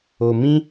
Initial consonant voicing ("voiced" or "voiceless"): voiced